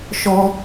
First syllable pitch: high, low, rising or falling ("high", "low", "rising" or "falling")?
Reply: high